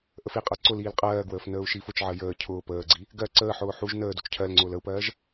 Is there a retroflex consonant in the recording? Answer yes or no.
no